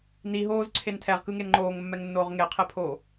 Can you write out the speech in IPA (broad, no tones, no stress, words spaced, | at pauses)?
niɦoːzǀʰen tʰɛʁkɯŋen ŋ͡ǃoːŋmːɛŋnːoːʁ ŋeqʰepʰo